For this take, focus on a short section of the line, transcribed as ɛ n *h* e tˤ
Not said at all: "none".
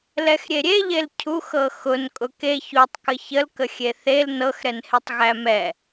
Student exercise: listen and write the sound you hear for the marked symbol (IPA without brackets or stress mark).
h